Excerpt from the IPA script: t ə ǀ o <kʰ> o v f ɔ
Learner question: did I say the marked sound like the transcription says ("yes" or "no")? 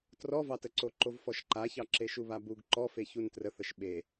no